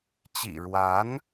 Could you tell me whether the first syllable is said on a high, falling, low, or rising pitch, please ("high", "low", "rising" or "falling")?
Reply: low